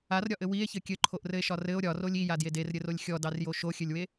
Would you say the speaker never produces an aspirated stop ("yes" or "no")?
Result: no